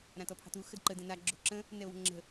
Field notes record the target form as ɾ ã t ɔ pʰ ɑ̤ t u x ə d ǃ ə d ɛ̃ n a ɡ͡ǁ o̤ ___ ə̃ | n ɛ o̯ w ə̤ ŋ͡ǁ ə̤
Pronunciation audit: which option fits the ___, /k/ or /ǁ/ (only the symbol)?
ǁ